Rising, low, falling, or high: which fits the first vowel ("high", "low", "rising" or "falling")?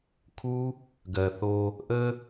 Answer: high